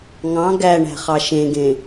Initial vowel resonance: nasal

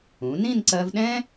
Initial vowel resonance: nasal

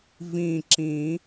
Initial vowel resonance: nasal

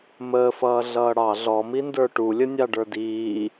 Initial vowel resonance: oral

